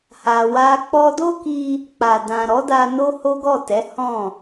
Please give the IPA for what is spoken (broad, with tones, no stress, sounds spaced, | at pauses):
h a˧ w a˦ k͡p ɔ˧ d o˦ k i˧ | k͡p a˨ d ã˨ ɾ ɔ˨˦ d a˧ n o˦ h o˦ ɡ ɔ˦˨ t ɛ˨˦ h ɔ̃˦˨